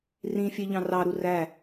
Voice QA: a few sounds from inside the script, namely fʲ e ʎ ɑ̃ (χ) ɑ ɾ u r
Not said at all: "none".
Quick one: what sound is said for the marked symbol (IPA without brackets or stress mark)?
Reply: r